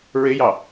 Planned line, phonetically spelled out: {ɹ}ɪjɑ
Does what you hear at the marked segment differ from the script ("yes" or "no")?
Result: no